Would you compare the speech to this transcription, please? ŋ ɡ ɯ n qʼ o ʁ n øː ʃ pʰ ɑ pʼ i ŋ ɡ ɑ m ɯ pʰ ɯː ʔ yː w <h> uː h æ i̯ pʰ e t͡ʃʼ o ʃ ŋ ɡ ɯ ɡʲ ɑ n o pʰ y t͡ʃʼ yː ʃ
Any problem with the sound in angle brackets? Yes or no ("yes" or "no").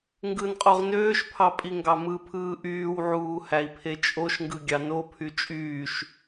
yes